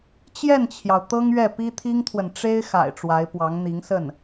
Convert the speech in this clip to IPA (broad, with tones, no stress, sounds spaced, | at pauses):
t͡ɕ j ɛ˥˩ n t͡ɕʰ j ɑ˩ ʊ̯ t̪ ɤ˥ ŋ ɥ ɛ˥˩ p i˥ t̪ʰ i˥ ŋ t̪ʰ w ə˨ n ʈ͡ʂ e˥ ɪ̯ x a̰˨˩ ɪ̯ ʈ͡ʂ w a˧˥ ɪ̯ p w ɑ˧˥ ŋ n̪ i˧˥ ŋ s ə˥˩ n